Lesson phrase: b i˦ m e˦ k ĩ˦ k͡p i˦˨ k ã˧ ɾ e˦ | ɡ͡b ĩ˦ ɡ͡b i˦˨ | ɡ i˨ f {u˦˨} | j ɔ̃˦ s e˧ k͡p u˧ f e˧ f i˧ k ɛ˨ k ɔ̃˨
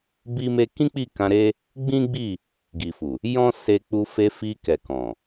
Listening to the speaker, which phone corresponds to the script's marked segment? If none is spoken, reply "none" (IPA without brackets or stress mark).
u˨